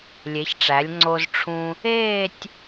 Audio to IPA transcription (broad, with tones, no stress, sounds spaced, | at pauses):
lʲ e˩˥ ç ʈ͡ʂ æ˩˥ lʲ ŋ͡ǀ o˧ z ʈ͡ʂʰ ũ˧ | eː˥˧ tʲ